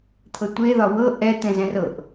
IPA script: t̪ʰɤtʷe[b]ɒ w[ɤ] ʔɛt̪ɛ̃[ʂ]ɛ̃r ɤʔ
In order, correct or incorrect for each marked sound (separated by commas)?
incorrect, correct, incorrect